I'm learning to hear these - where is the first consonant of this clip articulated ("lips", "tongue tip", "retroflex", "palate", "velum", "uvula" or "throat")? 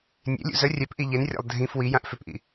tongue tip